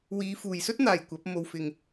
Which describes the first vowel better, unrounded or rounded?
unrounded